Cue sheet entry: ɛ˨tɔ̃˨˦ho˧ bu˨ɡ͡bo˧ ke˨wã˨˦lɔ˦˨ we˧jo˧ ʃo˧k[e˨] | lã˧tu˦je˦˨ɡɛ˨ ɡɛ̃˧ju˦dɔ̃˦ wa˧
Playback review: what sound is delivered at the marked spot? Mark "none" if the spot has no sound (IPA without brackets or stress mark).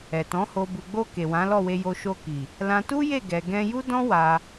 i˨